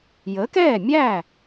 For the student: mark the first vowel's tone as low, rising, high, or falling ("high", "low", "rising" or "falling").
rising